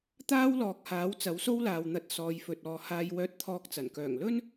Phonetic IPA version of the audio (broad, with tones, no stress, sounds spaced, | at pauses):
t̪ aː˥ w l ɔː˨ k̚ h aː˨˥ w t͡s ɐ˨˥ w s o˥ w l aː˨ w n̪ ɐ˧ t̚ s ɔː˨˧ j f ɵ˨ t̚ ɔː˨ h aː˧ j w œː˧ t̚ t̪ʰ ɔː˧ k̚ t͡s ɐ˨˩ n k œː˨˩ ŋ l ɵ˥ n